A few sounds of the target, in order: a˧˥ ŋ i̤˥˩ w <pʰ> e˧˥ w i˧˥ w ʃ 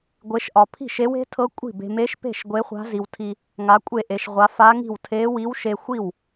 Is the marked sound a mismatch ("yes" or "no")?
yes